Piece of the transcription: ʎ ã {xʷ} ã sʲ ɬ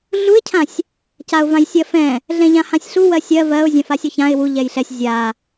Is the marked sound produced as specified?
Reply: no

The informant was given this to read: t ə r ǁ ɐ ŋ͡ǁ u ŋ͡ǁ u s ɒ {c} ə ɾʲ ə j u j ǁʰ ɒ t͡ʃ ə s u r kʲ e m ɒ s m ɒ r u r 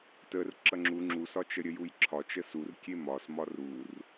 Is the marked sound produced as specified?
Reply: no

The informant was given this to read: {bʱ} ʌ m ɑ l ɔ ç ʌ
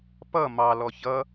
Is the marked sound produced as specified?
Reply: no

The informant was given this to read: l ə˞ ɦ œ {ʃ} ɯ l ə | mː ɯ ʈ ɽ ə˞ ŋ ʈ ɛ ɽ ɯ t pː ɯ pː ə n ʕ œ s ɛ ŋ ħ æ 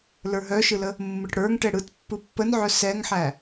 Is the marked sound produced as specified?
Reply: yes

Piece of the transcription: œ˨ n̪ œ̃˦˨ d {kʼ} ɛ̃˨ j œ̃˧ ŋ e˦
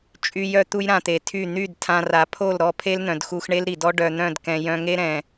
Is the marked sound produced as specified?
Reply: no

